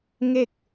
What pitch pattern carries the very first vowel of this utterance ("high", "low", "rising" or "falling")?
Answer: falling